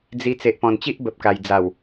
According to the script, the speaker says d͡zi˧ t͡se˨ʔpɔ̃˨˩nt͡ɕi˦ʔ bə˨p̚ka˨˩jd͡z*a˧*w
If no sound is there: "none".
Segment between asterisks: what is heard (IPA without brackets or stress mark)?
a˨˩